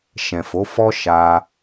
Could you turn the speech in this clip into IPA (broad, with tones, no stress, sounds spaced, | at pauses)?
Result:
ʃ ɛ̃˨ f o˨˦ f ɔ˦ ʃ a˧